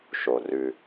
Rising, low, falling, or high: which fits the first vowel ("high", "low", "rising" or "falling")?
low